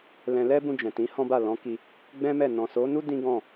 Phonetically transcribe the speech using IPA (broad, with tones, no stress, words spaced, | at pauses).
lɛ̃˧ lɛ˦bũ˧d͡ʒɛ̃˨ tĩ˨˦hɔ̃˦ba˦˨ lɔ̃˨˦ ki˧ | ɡ͡bɛ̃˦mɛ˦˨ nɔ̃˨so˨˦nu˦ dĩ˦ɡɔ̃˦˨